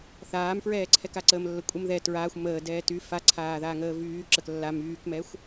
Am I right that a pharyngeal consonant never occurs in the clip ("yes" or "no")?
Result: yes